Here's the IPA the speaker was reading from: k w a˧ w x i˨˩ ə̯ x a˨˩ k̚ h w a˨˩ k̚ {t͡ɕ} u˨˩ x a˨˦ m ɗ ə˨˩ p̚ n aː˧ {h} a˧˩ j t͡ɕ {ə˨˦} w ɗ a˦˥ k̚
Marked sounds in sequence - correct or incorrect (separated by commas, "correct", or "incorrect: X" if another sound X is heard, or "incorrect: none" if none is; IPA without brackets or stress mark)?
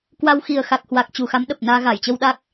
correct, incorrect: ɣ, incorrect: ə˧